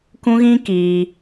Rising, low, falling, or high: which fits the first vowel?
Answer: high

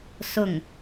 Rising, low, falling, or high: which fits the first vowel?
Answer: falling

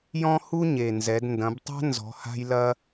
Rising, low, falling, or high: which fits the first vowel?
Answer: high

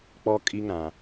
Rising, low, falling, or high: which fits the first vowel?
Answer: high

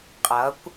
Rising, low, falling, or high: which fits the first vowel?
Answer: rising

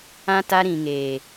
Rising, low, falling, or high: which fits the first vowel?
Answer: high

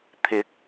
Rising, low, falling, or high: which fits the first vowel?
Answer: rising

